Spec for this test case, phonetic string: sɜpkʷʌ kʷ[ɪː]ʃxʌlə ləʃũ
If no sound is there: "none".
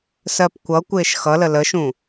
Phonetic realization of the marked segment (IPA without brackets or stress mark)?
ɪː